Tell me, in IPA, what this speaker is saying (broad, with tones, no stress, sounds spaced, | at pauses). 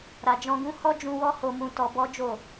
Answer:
ɾ a˨ d͡ʒ ɔ̃˧ ɡ ũ˦ h ɔ˦ d͡ʒ ũ˧ w ɔ˦ h o˧ m ũ˧ t ɔ˧ b ɔ˦ d͡ʒ o˦˨